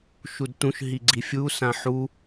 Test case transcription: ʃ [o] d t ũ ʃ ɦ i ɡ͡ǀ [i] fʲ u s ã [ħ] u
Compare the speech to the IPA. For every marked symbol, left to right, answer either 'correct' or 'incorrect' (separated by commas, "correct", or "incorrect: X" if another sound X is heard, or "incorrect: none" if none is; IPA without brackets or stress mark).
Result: incorrect: u, correct, correct